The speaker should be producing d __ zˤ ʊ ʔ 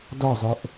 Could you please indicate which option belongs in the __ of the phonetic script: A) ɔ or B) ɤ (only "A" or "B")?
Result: A